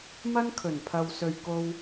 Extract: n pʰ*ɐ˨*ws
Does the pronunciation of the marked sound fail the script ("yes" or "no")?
no